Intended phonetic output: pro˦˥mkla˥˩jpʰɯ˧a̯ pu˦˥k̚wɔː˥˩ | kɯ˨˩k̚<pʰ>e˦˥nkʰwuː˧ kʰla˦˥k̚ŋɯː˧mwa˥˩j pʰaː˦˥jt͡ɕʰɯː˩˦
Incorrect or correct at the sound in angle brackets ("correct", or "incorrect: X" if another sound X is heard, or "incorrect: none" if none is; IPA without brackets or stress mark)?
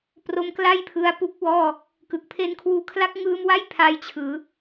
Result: correct